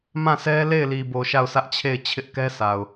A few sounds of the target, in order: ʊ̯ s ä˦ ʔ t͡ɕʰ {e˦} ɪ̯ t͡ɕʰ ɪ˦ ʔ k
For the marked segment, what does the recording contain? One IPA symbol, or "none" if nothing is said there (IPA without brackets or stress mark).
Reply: e˦˨